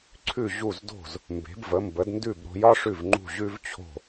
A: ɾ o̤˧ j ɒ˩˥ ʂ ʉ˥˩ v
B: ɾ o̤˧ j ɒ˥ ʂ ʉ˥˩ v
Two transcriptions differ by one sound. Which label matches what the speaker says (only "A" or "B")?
B